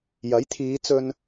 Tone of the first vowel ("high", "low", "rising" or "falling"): rising